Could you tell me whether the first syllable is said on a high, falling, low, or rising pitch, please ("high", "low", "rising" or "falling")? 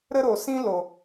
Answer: high